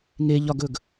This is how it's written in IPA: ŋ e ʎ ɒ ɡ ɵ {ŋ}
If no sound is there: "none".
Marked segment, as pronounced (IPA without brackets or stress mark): ɡ